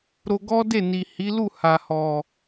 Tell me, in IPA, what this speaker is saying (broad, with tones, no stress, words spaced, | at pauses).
ɾo˧ɡɔ˦de˦˨ ni˨ hi˨˦ lu˦˨ ha˨hɔ˨